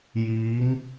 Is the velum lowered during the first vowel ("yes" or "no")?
no